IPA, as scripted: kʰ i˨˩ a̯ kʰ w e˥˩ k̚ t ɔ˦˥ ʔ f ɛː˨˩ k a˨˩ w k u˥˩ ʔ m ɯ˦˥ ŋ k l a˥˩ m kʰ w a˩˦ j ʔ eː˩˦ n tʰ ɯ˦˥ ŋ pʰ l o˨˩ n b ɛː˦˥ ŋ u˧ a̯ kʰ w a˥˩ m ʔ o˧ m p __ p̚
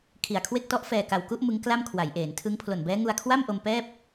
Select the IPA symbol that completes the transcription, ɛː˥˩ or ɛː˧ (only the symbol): ɛː˥˩